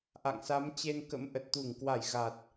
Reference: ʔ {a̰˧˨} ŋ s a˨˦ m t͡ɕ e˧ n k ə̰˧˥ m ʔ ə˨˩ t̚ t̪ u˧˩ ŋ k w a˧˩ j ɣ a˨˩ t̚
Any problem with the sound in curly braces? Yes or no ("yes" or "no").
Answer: no